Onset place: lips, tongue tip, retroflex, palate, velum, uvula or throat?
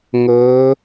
velum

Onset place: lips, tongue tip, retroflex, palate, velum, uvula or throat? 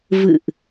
lips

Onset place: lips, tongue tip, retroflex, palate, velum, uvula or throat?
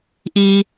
throat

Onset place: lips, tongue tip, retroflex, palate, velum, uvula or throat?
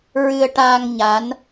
tongue tip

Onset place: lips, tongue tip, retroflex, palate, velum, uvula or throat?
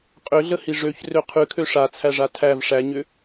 uvula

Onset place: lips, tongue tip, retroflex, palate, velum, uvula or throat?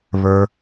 lips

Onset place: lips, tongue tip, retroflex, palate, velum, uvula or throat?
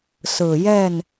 tongue tip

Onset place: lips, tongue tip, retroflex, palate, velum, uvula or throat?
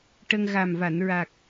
retroflex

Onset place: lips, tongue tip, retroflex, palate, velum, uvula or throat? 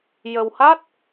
palate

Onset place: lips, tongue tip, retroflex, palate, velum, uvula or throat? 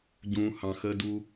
palate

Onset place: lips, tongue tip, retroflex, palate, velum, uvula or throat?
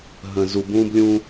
throat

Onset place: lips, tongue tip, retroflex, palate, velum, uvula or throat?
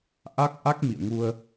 throat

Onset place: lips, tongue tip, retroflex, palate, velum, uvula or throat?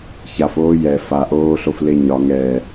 palate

